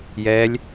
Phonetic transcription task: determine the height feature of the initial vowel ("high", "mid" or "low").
mid